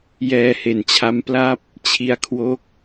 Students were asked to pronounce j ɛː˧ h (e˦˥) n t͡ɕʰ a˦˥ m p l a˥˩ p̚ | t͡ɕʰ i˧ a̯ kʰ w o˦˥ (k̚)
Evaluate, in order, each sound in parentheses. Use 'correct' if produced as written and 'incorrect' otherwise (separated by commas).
incorrect, correct